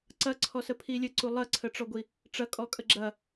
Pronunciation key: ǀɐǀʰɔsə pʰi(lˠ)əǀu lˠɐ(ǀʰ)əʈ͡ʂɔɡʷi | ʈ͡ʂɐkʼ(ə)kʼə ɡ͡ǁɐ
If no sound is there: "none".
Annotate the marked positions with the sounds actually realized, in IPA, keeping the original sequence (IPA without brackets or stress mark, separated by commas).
lʲ, ǀʰ, ɔ